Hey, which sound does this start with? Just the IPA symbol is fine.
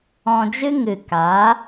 ɔ̃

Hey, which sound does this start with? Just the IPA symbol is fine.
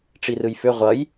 ʈ͡ʂ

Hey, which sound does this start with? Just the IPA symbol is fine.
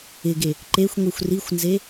ɪ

